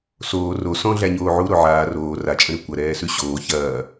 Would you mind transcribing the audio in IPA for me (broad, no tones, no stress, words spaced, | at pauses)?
soː ro sɔ̃ ɮæɲoːʕu ɾoʕaː roː rat͡ʃʼə̃ ɾʉkʷɐ ɾɛːsʉɕoː çɐː